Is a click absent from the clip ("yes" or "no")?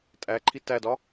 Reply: no